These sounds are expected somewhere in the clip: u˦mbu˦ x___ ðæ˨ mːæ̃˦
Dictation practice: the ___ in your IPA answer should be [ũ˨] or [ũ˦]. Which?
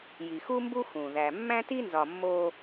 ũ˨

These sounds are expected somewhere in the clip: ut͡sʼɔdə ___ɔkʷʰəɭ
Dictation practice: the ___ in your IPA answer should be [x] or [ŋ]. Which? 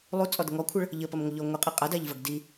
ŋ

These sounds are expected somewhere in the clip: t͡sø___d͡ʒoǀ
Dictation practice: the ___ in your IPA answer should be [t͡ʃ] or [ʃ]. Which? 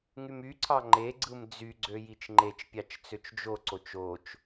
t͡ʃ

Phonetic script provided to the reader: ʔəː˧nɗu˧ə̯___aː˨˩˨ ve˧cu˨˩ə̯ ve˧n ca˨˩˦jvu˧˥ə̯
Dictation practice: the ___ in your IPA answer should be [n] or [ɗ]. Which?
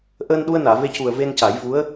n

